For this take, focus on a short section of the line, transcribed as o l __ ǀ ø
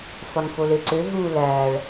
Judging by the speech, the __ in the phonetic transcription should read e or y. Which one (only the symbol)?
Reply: e